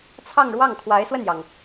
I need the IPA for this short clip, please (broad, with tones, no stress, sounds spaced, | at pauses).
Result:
t͡sʰ ɑ˥˧ ŋ ɻ w ɑ˥˩ ŋ kʰ w a˧˥ ɪ̯ s w ə˥˩ n j ɑ˩ ŋ